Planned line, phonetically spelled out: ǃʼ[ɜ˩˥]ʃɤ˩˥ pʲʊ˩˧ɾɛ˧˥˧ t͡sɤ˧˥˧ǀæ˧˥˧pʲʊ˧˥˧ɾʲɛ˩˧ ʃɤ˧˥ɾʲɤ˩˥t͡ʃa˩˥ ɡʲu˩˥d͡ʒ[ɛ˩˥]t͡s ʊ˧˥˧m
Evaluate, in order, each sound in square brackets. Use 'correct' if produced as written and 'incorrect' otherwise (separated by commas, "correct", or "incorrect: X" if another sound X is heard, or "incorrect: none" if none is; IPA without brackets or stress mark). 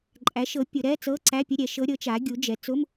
incorrect: æ˩˥, correct